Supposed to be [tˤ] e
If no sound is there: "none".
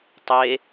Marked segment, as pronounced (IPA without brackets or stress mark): tˤ